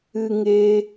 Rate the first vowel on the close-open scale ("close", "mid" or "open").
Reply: close